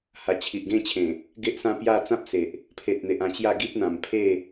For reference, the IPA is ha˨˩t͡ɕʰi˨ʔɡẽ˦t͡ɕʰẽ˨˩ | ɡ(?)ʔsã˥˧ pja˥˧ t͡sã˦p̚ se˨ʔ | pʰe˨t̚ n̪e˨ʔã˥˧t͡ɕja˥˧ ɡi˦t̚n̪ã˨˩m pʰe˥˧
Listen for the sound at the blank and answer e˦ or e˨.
e˦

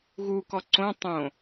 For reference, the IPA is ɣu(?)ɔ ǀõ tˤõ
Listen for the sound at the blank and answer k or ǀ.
k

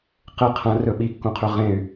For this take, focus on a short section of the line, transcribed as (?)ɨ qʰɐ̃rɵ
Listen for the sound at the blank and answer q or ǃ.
q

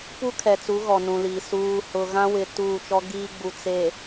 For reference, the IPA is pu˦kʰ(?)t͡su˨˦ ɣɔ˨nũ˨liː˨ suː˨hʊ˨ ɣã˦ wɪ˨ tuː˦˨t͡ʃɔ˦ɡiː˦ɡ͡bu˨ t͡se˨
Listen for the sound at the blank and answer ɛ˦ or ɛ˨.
ɛ˨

